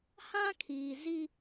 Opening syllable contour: high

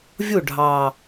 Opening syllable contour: falling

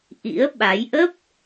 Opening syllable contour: rising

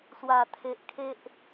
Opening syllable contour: low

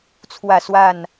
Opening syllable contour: falling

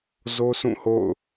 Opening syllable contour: high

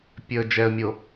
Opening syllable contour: low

